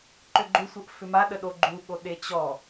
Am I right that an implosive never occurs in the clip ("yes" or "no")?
no